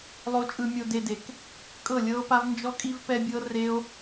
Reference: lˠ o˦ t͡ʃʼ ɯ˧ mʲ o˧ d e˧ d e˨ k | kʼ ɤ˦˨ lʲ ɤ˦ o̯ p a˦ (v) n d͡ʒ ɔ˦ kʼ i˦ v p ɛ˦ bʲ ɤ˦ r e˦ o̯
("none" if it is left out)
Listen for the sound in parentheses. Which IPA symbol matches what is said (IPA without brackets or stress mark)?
v